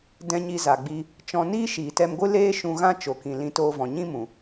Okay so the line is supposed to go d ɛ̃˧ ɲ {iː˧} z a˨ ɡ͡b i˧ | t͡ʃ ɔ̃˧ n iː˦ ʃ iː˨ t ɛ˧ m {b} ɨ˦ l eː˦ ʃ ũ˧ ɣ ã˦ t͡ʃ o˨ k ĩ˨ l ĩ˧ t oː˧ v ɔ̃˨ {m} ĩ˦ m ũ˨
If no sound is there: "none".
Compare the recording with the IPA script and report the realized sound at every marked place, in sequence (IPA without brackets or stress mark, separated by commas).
i˧, ɡʷ, ɲ